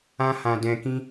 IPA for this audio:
ã˦hã˧ dɛ̃˧kĩ˦

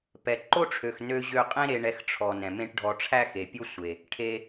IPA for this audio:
pɛ˨ ǃo˦ʈ͡ʂʰø˨x nø˧ʑø˧qʼẽ˦ ɾe˧ ɳɛ˧xʈ͡ʂʰɔ˨ nɛ̃˨mẽ˦ʈɖʱɔ˧ ʈ͡ʂʰæ˦xe˨pʲo˦sʷe˨ | ʈʰe˧

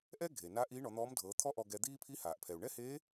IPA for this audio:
ʔɛ˥ ɡʱe˩ na˧˥ ʔiː˧˥ɳɔ˩˧n̪ɔː˧˥mdʱɤː˩˧ t̪ʰɔ˥ʔɔ˧ɡɛ˧d̪iː˥ pʰi˧˥ haː˩ʔpʰɛ˩u̯ ɳɛ˥heː˧˥

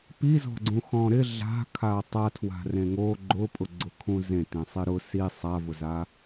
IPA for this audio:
pizɔ̤ɡ͡ǀũxɔ̃ ɾɪ ɮa̤ kʰatˤatʰwa̤ rẽŋo ɡ͡ǃʊ pʼʊɡ͡ǀʊkʰũzẽ tẽsˤɪɾʊ si sˤavʊza

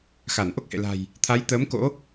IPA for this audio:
xa˧˩nʔo˦˥k̚hḛ˧˨la̤˨˩j | t̪ʰa˨˦jt̪əː˨˦m ko̰˧˥

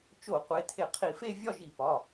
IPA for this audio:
t͡ʃo˧˩˧qʷe˩˧˩tʰe˧˩˧ qʰi˧˩˧fe˥˧ vʲɒ˥˧ʒi˧˩˧pɒ˩˧˩

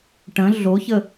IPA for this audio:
ʈə̃ ɮoçə

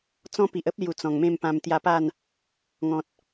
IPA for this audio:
t͡sɔ̃˦ pi˨ʔ ə˦p̚lju˨˩ t͡sɔ̃˨˩ŋmẽ˥˧m pã˧m t̪ja˧pa˥˧n | ŋɔ̃˨t̚

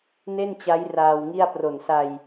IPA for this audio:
ne˥˩nt͡ɕa˦˥j raː˧wŋi˥˩a̯ pro˨˩nsa˧j

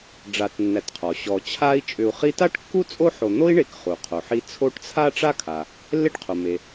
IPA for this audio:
ɖ͡ʐa˨tnːæ˨tqʰɔ˩ ɕɔ˩ t͡ɕʰa˦i̯t͡ʃʼʏ˨u̯ χi˦ ta˥ʈkːu˥ t͡sʼo˥ħo˨ n̪o˦i̯ɳe˨k χu˩qʰo˩ħi˦ t͡sʰo˦ʈt͡sʰa˥ʈ͡ʂa˥kʰa˩ | lːe˥ʈqʰo˩ me˩

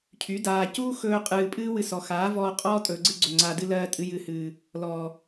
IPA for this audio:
cʰy˨˦ daː˨cuː˦ xɵː˦qʼɨː˧ pʼɨː˦wɨ˧sɔ˨xaː˨˦ vɔː˧ qʼɔː˦ tʼɵː˨ɡ͡ǀɨ˧ɡ͡ǀɵ˨ ŋ͡ǀaː˨dɨ˧ lɜː˧ tʼɨ˨jɨ˨hɨː˨ | lɔ˨

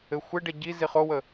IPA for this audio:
ɘ xʷɘɖɛ ɟi ziχowə

